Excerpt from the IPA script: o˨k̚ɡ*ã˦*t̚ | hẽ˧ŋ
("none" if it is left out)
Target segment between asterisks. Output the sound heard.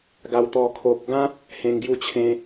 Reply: ã˦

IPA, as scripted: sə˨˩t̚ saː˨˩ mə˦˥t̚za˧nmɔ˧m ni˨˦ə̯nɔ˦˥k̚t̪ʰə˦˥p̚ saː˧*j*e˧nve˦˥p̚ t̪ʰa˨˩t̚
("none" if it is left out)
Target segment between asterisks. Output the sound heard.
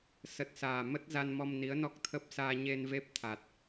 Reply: ɲ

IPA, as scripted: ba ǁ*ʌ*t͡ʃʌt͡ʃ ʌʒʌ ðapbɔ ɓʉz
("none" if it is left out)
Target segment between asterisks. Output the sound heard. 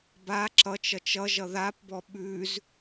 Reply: ʌ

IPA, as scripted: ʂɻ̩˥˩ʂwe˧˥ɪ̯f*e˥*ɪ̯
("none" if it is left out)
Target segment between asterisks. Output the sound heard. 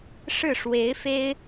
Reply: e˥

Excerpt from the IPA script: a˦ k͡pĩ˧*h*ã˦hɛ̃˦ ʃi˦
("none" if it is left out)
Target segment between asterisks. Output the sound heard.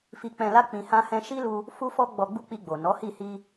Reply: h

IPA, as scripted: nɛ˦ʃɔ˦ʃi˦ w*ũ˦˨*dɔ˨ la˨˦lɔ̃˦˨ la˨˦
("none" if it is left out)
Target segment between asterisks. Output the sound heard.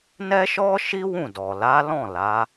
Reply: ũ˦˨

